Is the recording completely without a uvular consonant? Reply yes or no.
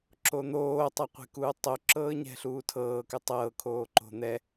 no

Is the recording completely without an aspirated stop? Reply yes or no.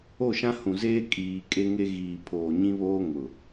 no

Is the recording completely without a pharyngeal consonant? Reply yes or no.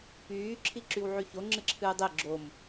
no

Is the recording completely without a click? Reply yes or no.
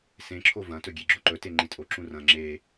no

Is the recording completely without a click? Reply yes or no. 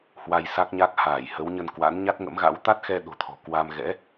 yes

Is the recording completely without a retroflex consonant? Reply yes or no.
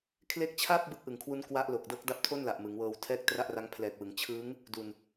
yes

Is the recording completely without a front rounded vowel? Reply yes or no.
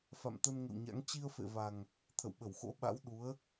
yes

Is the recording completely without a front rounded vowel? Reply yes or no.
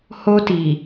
yes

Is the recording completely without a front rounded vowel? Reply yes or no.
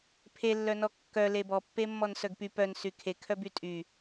no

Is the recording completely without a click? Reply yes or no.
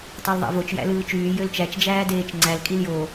no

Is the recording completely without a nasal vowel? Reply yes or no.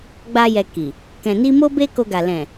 no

